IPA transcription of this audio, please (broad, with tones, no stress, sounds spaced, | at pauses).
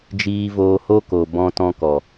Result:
d͡ʒ iː˧ v oː˧ h o˦ k o˨ b ɔ̃˧ t ɔ̃˧ k ɔ˨